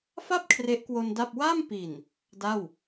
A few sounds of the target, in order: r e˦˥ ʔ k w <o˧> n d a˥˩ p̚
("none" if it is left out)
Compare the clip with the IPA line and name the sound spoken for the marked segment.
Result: o˧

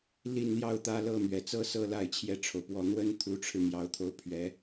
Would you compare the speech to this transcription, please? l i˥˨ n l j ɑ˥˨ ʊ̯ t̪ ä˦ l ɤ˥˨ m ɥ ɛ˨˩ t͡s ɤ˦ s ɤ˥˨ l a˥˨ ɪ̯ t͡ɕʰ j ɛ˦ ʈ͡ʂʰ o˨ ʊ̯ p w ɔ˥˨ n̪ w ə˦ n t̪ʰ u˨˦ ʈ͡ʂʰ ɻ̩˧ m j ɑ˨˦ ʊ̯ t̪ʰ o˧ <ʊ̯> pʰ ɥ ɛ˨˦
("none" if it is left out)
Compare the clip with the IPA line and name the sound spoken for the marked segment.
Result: ʊ̯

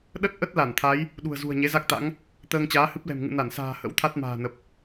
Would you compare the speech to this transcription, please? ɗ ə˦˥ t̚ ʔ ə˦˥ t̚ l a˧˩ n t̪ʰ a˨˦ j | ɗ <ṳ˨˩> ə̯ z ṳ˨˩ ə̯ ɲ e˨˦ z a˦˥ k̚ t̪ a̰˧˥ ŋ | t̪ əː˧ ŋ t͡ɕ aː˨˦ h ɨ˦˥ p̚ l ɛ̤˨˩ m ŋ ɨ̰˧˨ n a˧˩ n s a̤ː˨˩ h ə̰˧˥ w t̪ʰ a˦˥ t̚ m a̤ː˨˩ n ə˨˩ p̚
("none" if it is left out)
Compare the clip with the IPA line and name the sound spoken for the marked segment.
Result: ṳ˨˩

